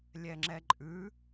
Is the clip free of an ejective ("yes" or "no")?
no